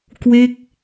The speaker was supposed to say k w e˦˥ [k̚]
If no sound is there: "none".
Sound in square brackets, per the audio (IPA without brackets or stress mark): k̚